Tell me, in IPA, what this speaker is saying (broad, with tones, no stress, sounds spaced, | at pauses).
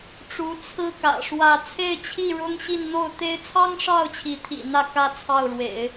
ʈ͡ʂ u˧˥ t͡sʰ ɹ̩˥ k ä̰˨˩ ʂ w ä˥˧ t͡sʰ e˥˧ ɪ̯ t͡ɕʰ i˥˩ ɻ ʊ˥ ŋ ɕ i˥˧ n n̪ o˥˩ ʊ̯ t̪ e˥ ɪ̯ t͡sʰ ɑ˥ ŋ ʂ ɑ˥˩ ʊ̯ t͡ɕʰ i˧˥ t̪ʰ ḭ˨˩ n̪ ä˥˩ k ä˥ t͡sʰ ɑ˥˩ ʊ̯ ɻ w ḛ˨˩˦ ɪ̯